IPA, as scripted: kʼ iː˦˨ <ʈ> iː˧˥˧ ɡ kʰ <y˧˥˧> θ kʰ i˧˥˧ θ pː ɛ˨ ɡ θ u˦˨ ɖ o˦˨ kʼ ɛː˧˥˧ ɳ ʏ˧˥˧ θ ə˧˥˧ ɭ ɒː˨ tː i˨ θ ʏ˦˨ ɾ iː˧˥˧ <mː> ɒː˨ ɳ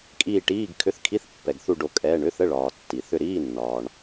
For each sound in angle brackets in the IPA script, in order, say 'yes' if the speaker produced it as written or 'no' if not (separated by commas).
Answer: yes, no, no